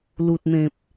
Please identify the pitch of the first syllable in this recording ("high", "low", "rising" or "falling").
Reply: low